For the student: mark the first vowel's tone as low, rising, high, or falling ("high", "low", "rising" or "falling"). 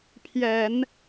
low